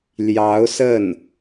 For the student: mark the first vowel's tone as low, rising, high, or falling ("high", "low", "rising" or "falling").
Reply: rising